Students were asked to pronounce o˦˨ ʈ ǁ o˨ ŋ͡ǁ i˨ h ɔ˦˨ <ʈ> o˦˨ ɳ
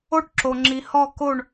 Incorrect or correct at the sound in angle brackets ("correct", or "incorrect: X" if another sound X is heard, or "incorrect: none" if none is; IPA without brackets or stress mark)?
incorrect: k